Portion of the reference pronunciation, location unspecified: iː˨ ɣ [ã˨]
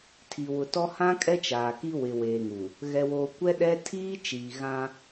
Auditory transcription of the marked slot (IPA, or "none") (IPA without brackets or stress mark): ã˦